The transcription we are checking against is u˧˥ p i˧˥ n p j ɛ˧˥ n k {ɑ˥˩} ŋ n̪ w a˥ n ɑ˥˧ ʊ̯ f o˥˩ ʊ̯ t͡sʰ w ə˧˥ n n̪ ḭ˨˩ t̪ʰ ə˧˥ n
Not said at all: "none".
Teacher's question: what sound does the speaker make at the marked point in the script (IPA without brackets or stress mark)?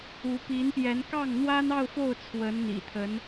ɑ˥˩